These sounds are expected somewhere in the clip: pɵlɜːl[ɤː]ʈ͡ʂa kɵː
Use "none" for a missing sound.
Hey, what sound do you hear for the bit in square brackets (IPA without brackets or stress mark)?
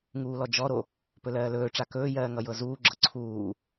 ɵː